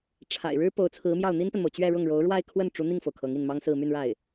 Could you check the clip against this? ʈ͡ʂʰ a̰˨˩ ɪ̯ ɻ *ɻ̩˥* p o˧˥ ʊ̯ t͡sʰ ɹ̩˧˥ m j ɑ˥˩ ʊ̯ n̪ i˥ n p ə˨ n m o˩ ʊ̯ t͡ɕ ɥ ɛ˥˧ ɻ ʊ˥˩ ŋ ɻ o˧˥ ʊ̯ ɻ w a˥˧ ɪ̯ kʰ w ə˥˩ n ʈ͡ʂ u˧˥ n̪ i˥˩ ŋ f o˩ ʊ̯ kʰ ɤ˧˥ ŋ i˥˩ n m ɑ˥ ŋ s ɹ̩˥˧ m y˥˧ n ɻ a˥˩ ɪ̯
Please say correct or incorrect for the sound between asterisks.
correct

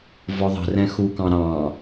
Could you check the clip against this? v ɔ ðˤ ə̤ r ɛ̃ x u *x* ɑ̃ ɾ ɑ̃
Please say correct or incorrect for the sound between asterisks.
incorrect: k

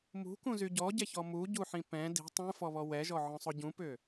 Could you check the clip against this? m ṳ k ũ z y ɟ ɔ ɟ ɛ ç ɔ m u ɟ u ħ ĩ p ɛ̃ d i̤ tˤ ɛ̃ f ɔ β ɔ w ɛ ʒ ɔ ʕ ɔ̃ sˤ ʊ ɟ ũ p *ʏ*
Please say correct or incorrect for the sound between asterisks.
correct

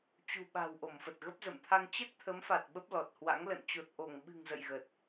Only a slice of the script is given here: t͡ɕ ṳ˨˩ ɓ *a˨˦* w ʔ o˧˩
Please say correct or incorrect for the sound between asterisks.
incorrect: a̤˨˩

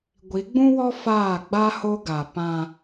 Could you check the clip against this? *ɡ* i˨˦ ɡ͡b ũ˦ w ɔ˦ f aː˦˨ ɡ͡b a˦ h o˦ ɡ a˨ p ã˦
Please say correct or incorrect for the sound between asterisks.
incorrect: ɡʷ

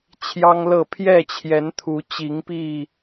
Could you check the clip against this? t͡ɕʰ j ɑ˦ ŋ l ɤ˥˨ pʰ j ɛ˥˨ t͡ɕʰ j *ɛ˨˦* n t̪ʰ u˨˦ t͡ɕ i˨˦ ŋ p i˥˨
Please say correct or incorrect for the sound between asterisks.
correct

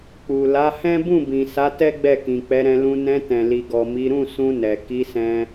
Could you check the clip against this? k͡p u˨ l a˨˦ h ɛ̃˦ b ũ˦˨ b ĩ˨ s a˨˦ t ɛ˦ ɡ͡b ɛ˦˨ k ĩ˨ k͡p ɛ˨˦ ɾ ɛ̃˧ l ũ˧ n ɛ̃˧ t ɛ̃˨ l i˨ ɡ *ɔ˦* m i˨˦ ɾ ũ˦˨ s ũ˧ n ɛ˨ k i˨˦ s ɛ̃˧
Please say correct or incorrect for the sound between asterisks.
incorrect: ɔ˨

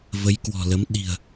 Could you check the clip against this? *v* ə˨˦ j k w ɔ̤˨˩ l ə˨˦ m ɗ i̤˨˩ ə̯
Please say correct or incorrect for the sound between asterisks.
correct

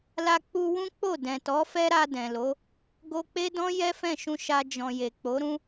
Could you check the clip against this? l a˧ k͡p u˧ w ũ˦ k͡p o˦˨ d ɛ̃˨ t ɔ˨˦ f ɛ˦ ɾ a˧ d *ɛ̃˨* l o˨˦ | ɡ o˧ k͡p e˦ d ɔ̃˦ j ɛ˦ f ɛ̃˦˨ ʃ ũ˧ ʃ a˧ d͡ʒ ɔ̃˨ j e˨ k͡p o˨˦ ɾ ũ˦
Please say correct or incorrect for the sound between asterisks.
correct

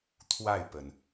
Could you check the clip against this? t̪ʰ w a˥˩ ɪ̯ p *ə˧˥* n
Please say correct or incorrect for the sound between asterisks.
incorrect: ə˩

